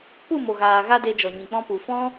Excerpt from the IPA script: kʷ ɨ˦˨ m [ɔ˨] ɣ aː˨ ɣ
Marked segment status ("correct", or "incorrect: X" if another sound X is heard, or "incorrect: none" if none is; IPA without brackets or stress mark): incorrect: o˨